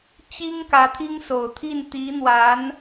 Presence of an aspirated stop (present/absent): present